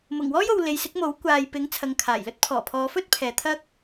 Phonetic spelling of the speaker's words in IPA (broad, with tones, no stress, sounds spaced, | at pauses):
m ʊ˨˩ ŋ w ɔː˥ j o˨ w l e˨˧ j s ɪ˨˥ k̚ m o˨˥ w kʷ aː˨ j p ɪ˨˥ ŋ t͡sʰ ɐ˨ ŋ kʰ aː˨˩ j l ɵ˥ t̚ pʰ ɔː˨˩ pʰ ɔː˨˧ f ɵ˥ t̚ pʰ ɛː˨ t̪ʰ ɐ˥ k̚